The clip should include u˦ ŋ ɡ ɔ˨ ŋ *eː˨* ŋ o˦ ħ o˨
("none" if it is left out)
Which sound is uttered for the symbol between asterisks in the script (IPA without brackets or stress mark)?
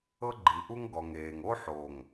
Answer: eː˨